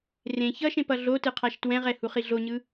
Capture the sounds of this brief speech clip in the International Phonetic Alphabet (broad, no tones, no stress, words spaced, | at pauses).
rẽ çʌʃẽp ʌɮotɯ qʰaʃtwɛ̃ʁɛ huχiɮoɲɯ